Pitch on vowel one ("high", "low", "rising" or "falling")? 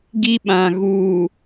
high